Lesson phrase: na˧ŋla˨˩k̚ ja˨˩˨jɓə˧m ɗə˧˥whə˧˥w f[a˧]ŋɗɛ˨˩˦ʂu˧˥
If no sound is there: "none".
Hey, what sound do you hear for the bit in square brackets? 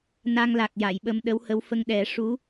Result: ə˧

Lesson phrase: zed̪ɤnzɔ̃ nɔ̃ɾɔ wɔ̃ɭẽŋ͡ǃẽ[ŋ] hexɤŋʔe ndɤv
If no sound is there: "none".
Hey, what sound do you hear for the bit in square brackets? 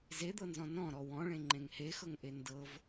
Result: ŋ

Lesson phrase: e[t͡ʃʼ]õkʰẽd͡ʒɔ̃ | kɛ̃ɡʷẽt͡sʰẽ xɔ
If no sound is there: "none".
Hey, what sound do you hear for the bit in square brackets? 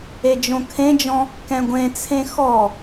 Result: d͡ʒ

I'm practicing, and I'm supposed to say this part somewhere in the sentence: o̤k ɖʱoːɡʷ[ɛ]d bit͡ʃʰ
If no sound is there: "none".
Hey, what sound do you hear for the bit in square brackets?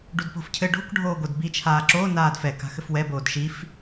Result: ɘ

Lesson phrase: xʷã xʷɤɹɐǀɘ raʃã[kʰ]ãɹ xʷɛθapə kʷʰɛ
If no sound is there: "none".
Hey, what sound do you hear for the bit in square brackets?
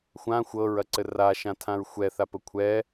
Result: tʰ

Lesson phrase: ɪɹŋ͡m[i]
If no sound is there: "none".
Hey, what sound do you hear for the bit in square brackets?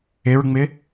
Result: ɪ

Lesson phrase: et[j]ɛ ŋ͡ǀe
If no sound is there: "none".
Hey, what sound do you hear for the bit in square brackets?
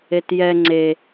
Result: j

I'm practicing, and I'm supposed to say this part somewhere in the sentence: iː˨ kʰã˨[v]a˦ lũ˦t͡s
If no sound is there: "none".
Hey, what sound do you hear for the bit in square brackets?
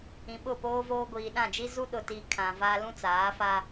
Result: v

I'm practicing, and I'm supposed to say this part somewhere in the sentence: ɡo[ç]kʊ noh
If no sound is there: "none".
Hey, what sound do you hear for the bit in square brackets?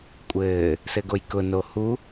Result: j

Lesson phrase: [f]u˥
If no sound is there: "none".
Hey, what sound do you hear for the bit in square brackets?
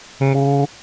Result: m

